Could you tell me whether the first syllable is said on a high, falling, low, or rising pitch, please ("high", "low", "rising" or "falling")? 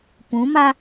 rising